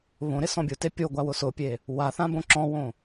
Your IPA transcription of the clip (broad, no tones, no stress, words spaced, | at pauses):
βõɾɪ sɔ̃bʲʊte pʲo ɡʷawʊsʊpʲe | waθã bõǁɔ̃wõ